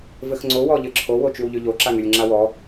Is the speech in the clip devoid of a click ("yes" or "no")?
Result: no